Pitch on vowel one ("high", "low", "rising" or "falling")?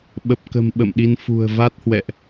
low